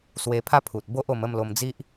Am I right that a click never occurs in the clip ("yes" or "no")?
yes